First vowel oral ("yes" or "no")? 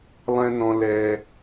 no